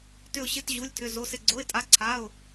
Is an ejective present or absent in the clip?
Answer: present